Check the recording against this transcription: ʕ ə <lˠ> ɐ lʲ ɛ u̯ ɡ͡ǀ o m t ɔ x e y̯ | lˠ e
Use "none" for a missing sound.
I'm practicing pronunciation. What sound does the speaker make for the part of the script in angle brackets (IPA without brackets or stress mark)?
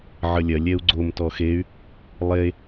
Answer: lʲ